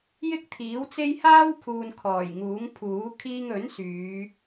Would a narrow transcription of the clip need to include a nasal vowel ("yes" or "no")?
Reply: no